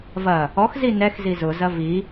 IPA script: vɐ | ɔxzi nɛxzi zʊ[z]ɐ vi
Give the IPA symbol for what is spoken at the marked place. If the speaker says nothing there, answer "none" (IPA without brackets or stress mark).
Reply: z